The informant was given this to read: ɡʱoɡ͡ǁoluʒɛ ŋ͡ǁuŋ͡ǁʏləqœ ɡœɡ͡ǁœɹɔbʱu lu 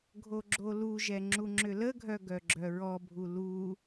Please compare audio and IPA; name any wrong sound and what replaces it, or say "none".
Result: q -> ɡʱ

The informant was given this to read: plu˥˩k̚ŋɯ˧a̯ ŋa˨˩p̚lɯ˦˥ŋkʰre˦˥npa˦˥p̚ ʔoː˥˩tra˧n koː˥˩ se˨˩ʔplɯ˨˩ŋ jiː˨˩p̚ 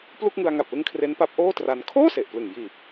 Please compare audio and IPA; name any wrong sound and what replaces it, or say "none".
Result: k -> kʰ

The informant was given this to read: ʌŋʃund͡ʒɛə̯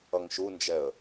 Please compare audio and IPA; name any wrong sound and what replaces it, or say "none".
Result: none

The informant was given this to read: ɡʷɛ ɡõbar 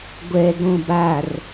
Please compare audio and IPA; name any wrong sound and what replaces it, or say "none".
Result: none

